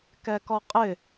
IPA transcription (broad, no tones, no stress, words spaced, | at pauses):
kɛkɔqʼɪ